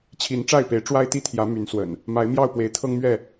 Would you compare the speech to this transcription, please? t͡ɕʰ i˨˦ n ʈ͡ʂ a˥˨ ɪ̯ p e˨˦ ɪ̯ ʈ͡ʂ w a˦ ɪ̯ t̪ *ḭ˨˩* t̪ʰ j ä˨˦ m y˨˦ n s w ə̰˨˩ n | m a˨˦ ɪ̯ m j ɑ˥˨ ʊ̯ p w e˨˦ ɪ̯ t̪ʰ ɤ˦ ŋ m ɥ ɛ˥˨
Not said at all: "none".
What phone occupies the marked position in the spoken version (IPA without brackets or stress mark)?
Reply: i˥˨